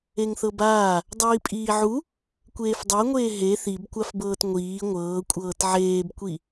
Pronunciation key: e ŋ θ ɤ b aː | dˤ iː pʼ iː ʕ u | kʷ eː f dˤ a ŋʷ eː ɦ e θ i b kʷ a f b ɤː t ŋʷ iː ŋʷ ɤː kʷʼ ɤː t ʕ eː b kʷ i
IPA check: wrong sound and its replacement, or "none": none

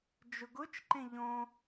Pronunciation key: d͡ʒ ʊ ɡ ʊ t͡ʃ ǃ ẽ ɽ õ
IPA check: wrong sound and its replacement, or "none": ɽ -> ʎ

